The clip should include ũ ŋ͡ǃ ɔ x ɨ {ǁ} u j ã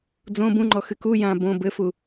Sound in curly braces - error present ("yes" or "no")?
yes